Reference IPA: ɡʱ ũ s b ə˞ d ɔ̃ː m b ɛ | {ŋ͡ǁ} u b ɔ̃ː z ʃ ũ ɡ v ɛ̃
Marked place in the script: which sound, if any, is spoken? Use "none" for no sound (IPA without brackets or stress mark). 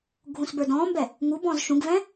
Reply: ŋ